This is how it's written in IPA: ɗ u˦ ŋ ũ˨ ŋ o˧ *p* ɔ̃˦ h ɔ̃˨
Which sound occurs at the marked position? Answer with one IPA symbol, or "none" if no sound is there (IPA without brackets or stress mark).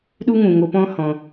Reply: p